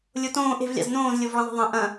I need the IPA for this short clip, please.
lʲotõː ʔe̤vlʲa̰z nõːzlʲovɭɐ̃ðˤe̤ ðˤɐ̃ ʔɐ̃

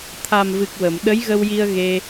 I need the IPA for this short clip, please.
t̪ʰa˨˩mvɨ˨˩k̚ wə˨˩˨m ɗə˧˥jɣə˧wji˧ə̯ ɣe˧

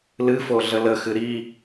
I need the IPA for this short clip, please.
lɨfo ɮələxɨ ɾi

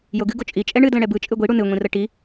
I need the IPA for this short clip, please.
joɡɨɡo t͡ʃʼit͡ʃʼɛ ɳɨdlə̃ ɽɛbɯ t͡ʃʼɨɡʷiɽu nɨŋʷĩrə ʈi

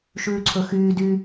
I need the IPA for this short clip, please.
ʃʉːǀʰɵxyː dy

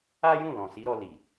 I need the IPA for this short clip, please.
a˦jũ˦˨ lɔ̃˨si˨˦ɾɔ˧ li˨

